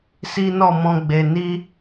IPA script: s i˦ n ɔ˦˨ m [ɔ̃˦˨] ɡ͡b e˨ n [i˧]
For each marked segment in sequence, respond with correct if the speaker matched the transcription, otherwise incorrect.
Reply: incorrect: ɔ̃˧, correct

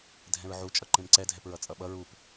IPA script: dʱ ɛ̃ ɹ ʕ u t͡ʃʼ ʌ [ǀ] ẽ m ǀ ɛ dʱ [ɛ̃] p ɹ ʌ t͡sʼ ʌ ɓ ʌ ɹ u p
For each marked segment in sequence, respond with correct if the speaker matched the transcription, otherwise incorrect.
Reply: incorrect: ǃ, incorrect: ɛ

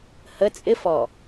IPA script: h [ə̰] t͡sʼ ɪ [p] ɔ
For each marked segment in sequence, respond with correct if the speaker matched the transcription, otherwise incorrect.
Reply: incorrect: ə, incorrect: f

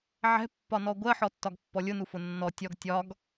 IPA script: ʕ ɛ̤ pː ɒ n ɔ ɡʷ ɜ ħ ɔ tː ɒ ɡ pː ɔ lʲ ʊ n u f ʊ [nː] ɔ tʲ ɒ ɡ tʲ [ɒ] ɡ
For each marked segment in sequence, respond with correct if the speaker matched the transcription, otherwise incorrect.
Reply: correct, correct

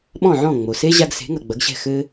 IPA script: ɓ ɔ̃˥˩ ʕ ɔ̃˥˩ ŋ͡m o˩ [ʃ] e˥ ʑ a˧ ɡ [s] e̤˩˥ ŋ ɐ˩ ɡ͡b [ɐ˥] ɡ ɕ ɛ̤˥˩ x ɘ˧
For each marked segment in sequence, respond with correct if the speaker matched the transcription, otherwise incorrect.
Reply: incorrect: s, correct, incorrect: ɐ˩˥

